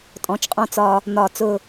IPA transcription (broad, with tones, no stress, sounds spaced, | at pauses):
tʼ ɔ̃˩˥ t͡ʃ qʼ ɔ̃˦ t͡s ɒ˦ | n̪ ɒ˧˩˧ t͡s ʊ˦˨